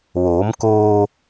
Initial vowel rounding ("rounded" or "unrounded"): rounded